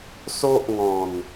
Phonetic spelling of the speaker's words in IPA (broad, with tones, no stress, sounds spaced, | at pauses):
s o˦ ʔ ŋ ɔ̃˨˩ n